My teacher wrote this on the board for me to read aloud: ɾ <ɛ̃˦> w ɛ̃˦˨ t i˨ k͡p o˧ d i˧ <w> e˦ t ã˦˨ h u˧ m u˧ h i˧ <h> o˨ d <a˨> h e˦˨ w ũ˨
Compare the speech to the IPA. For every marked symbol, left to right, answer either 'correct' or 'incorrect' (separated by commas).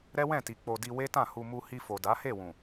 incorrect, correct, incorrect, incorrect